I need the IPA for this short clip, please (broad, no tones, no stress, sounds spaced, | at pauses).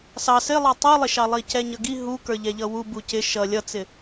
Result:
s ɑ s ɪ lˠ ɑ tˤ u lˠ ɪ ʃ ɑ lˠ i c ɛ ɲ ʌ ɡ i ɦ u k ə˞ ʎ ɛ ʎ ʌ w u b u c ɪ ʃ ʌ lʲ ʌ t͡s ɪ